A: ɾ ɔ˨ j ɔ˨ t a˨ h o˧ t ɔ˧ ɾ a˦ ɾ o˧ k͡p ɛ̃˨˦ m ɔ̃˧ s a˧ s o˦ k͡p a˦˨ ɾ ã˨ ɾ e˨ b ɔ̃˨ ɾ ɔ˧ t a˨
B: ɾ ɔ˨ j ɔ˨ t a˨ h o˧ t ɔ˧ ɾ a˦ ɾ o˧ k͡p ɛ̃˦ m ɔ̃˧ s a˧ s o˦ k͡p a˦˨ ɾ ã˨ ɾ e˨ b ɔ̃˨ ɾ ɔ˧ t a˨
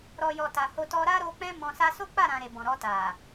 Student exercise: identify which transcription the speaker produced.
B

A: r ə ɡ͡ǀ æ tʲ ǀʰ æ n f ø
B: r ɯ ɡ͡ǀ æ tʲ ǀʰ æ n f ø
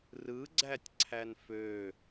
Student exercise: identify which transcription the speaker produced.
B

